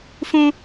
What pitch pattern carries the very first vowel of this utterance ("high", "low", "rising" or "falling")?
high